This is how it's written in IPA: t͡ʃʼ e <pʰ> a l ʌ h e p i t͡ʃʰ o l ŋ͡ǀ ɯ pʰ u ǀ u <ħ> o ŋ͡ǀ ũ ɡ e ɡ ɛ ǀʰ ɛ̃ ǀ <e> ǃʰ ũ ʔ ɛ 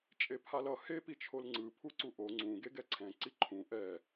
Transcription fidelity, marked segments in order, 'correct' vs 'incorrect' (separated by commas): correct, incorrect, incorrect